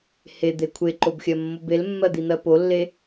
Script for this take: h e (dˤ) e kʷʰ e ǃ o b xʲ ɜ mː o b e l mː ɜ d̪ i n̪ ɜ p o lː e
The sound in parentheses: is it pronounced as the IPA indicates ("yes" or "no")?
no